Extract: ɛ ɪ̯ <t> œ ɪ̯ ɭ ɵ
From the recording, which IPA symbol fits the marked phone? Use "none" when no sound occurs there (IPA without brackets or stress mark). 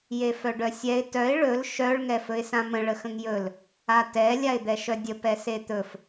t